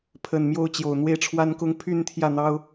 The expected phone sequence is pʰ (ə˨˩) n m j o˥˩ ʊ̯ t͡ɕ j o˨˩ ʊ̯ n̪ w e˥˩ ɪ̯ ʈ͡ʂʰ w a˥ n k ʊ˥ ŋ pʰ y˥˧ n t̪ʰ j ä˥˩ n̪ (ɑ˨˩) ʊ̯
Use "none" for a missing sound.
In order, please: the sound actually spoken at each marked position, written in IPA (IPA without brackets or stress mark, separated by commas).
ə˨˩, ɑ˥